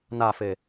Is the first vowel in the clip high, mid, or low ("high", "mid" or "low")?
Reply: low